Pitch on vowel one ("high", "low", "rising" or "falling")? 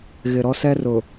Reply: low